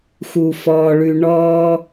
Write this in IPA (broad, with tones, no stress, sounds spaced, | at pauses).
x u˨ f ɔː˨ ɭ ʉ˨ ɳ ɔː˧